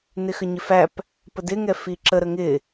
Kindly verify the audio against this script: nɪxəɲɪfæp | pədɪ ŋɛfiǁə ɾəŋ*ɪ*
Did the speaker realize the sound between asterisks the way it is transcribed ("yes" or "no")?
yes